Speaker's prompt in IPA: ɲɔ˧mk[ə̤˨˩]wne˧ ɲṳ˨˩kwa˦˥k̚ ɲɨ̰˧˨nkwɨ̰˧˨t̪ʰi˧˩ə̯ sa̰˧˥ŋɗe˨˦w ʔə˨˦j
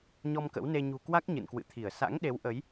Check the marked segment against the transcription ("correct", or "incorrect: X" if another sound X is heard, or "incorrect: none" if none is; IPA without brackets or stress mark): incorrect: ə̰˧˥